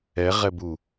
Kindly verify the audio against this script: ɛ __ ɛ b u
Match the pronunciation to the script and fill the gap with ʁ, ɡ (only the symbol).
ʁ